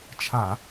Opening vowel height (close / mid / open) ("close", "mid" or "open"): open